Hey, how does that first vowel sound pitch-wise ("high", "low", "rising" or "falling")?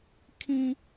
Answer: high